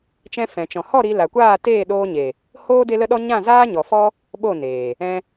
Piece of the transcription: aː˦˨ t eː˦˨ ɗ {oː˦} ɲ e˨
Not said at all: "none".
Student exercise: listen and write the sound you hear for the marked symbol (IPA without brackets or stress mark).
oː˧